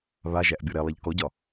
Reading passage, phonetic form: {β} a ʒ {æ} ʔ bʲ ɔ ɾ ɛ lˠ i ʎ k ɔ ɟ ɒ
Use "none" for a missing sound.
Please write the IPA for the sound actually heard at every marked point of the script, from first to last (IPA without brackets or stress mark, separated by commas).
β, æ